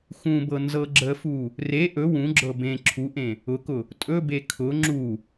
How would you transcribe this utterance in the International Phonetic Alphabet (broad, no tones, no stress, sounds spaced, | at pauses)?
x ũ b ɤ n z ɤ ɡ͡ǁ ə f u | r e ʔ ɵ w ũ ɡ͡ǁ ɤ b ẽ ǁʰ u ʔ ẽ | ʊ k ʊ | tʼ ɵ b e kʰ ʊ ŋ͡ǁ u